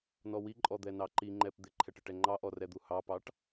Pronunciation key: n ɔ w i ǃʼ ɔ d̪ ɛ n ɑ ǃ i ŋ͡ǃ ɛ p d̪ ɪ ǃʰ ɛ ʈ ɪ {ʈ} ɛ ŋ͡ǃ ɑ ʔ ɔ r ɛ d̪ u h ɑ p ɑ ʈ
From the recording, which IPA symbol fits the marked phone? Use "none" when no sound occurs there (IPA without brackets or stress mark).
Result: ʈ